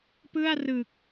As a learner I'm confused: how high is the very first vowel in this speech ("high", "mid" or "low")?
high